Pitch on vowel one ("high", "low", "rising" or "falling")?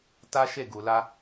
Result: high